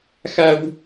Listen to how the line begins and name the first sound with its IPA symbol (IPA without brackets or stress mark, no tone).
x